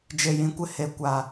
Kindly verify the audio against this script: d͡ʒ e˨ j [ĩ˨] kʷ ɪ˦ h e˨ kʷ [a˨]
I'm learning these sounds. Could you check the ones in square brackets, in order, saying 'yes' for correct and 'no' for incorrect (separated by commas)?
yes, yes